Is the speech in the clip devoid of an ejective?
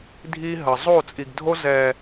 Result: no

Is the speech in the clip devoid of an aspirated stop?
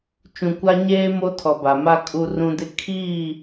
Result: no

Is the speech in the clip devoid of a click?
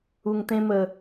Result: yes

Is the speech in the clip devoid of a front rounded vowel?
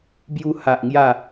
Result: yes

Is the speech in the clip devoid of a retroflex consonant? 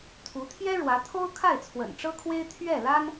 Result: no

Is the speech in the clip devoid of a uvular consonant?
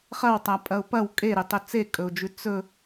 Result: no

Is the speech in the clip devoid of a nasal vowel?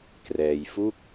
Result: yes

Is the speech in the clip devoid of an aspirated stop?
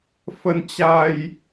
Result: yes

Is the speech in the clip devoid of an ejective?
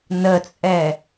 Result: no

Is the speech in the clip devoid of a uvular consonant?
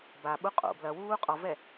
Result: no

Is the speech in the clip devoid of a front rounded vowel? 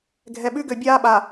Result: no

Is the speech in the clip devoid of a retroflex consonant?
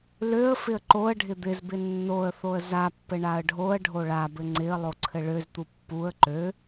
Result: no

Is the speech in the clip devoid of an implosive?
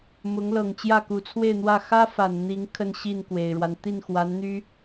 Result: yes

